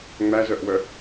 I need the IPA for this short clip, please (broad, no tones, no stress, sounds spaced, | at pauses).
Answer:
ŋ͡m æ z œ ʔ w œ